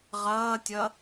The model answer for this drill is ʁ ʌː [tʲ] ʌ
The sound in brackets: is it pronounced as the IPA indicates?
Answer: yes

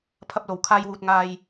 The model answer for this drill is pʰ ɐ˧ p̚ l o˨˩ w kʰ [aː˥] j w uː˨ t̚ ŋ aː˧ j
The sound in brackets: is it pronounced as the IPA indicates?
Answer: no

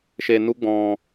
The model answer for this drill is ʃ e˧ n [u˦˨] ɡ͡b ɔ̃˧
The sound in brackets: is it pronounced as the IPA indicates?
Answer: no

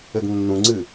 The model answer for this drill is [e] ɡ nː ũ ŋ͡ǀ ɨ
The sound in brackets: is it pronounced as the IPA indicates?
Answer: no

